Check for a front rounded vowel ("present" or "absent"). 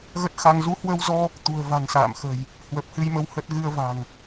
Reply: absent